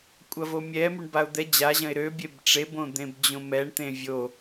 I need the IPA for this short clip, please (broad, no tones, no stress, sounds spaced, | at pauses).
kʷʼ ɐ v o mʲ ɛ m y ɳ b a ʊ̯ d̪ ɛ d͡ʑ a ʑ ɐ̃ ɪ̯ ɾ ø bʲ e b ʈ͡ʂ e b õ d̪ ẽ b d͡ʑ õ m ɛ ɳ t̪ ẽ vʲ o